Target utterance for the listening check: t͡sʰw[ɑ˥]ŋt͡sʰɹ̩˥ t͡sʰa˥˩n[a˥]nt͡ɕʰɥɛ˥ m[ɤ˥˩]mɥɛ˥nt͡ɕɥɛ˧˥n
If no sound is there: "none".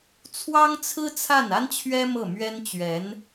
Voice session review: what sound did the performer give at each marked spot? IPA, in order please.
ɑ˥, a˥, ɤ˥˩

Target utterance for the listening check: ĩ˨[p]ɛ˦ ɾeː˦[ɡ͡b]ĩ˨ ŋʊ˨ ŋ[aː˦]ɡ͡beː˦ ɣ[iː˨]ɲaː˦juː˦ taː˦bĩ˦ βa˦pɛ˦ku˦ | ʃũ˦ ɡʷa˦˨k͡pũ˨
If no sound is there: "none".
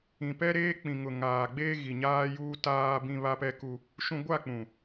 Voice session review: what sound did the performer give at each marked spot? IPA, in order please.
p, k͡p, aː˨, i˨

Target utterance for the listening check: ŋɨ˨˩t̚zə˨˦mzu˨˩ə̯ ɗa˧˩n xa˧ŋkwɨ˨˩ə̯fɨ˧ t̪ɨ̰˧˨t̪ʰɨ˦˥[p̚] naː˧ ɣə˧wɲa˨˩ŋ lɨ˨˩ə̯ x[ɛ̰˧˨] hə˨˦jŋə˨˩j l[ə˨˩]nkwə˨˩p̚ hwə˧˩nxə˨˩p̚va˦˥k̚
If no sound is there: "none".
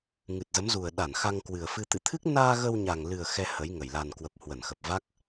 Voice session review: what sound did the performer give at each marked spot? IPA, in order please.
k̚, ɛ˧, a˨˩

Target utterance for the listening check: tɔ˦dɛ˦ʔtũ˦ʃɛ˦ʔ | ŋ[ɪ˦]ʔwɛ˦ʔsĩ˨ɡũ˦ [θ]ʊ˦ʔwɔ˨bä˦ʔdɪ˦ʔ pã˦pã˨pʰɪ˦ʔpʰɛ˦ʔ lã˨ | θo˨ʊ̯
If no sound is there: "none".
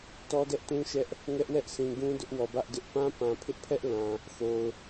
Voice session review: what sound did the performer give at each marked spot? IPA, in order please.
ɛ˦, d

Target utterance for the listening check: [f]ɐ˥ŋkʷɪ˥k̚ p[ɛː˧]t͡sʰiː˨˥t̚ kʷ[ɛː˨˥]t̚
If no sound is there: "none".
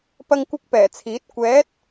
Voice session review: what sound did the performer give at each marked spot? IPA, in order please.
p, ɛː˨˩, ɛː˨˥

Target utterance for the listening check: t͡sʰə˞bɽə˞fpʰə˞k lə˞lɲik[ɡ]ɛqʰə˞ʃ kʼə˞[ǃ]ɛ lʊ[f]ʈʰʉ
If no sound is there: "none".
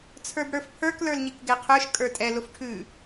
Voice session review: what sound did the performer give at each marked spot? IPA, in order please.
ɡ, tʼ, f

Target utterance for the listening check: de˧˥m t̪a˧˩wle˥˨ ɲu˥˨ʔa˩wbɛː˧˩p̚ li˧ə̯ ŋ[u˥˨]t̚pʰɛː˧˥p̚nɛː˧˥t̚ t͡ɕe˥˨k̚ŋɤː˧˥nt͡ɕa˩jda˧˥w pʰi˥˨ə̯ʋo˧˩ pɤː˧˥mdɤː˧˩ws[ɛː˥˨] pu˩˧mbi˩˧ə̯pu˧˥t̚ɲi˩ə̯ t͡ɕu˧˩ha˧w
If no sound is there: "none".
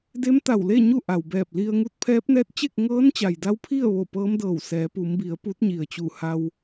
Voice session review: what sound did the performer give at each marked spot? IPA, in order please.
u˧, ɛː˩˧

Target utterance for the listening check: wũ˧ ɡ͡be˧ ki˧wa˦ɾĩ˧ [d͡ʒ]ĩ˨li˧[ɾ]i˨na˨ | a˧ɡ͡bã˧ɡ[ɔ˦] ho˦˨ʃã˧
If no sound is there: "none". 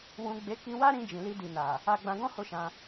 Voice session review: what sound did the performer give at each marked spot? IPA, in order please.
d͡ʒ, d, ɔ̃˦

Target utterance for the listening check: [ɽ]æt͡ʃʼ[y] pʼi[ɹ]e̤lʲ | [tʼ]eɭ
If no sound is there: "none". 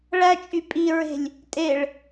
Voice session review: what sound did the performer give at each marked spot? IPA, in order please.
ɭ, y, ɹ, tʼ

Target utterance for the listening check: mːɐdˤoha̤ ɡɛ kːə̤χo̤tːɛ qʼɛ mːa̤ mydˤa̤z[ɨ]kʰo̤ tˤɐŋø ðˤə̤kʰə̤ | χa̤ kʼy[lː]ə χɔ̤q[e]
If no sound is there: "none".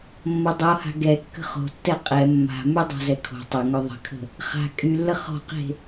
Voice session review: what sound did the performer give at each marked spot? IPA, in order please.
ɛ, lː, e̤

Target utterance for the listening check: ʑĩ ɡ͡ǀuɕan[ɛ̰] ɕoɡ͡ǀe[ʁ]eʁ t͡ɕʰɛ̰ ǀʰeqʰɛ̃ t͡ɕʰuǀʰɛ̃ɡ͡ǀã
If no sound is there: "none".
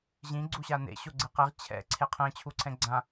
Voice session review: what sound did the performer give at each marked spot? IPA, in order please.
ḛ, q

